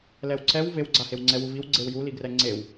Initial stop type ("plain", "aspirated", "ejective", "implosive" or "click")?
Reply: click